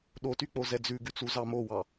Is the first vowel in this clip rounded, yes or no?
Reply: yes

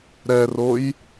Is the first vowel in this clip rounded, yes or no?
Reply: no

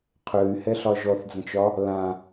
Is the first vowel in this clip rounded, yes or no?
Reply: yes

